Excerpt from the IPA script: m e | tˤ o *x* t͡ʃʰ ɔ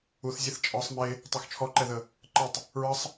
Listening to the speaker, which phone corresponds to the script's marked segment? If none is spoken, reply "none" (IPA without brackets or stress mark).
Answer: x